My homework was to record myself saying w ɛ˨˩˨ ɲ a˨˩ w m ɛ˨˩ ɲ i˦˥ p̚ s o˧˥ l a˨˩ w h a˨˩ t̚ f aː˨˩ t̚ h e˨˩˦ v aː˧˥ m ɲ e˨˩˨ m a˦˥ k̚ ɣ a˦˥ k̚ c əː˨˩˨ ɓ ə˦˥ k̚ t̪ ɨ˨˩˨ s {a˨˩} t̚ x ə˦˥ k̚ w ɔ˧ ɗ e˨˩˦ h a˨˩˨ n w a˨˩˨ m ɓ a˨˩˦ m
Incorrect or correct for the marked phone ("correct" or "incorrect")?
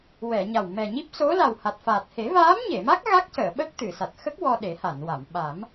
correct